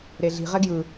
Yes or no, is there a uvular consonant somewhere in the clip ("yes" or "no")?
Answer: yes